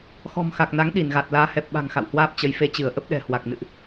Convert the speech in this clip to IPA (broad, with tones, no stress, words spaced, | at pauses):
xɔ̤˨˩mxa˨˩k̚na˨˦ŋ ɗi˧˩nɣa˨˩t̚ laː˨˦hɛ˨˩p̚ɓa̤˨˩ŋ xa̰˧˨whwaː˦˥p̚t͡ɕə˨˦j fe˧t͡ɕɨ˧˩ə̯ ʔə˦˥p̚ɗɛ̤˨˩ hwa˨˩k̚nɨ̰˧˨ʔ